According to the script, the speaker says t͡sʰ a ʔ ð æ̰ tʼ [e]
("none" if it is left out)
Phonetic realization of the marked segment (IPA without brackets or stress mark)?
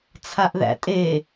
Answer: e